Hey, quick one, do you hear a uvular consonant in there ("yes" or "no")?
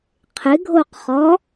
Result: yes